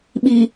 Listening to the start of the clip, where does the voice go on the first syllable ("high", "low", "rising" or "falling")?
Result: low